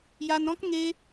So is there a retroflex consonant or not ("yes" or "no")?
no